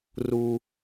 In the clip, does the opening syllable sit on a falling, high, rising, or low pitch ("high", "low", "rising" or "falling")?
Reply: low